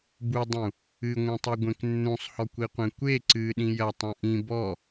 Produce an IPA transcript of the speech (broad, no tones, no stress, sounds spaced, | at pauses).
b u dˤ ũ | ɨ ŋʷ ĩ tˤ u ɡʷ ẽ k nː ũ sˤ h ɔ kʷ i qʷ ẽ kʷ e ǀ ɨ ɗ ĩ j ɐ tˤ ũ ʔ ĩ b ɔ